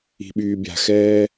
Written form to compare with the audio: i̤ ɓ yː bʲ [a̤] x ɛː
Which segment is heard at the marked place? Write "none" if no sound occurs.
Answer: a̤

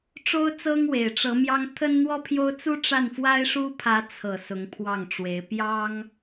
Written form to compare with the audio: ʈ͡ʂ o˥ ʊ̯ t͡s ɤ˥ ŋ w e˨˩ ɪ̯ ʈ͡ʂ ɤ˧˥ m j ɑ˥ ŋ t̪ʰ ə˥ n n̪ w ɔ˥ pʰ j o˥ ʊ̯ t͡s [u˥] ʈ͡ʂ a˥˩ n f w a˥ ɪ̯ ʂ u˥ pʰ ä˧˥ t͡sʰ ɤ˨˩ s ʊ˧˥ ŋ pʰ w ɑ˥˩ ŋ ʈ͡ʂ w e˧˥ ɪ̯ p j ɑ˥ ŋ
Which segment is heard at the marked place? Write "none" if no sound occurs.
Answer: u˥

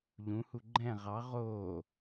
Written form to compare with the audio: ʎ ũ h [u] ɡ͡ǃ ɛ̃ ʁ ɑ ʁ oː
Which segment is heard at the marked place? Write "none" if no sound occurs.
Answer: u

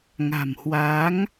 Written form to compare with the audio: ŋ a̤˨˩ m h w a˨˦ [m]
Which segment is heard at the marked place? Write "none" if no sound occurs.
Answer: ŋ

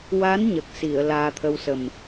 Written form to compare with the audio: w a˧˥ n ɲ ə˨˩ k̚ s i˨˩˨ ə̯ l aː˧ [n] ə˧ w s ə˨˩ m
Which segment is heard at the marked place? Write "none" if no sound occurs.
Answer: t̪ʰ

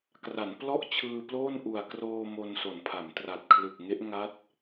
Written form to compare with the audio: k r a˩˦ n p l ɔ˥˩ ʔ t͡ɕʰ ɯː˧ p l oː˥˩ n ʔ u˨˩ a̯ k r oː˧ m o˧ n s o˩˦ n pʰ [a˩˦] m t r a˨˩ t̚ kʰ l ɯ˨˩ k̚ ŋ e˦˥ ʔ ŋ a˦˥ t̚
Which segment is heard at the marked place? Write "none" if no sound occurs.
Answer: a˩˦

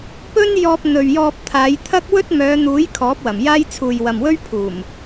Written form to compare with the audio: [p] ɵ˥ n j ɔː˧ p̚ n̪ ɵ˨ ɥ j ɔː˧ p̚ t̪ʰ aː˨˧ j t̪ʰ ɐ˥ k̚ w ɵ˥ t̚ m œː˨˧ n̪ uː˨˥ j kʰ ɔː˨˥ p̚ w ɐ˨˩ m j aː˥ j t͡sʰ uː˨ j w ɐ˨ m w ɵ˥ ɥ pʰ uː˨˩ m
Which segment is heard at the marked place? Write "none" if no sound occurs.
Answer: p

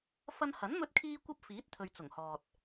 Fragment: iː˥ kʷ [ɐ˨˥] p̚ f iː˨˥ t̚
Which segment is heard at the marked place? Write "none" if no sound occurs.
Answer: ɐ˥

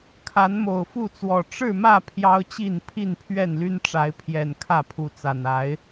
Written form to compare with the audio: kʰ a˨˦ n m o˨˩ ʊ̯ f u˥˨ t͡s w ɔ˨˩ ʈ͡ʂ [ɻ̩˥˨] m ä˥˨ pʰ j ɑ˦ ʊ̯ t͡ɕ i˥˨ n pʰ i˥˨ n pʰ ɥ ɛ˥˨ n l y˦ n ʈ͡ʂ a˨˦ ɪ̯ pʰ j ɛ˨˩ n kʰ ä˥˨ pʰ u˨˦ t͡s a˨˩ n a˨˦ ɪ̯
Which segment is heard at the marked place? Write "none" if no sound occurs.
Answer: ɻ̩˥˨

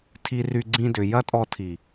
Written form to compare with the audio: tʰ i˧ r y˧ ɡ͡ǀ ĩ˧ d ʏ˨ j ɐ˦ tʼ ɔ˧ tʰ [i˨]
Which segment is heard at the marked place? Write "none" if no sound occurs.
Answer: i˨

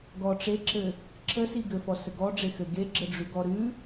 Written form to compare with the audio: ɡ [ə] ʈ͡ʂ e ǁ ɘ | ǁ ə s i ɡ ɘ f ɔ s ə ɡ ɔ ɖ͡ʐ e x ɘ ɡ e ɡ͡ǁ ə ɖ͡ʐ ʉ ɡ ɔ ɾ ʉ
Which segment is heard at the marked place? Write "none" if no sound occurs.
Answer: ɔ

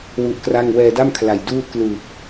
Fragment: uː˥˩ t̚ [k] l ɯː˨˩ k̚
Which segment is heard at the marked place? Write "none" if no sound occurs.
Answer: k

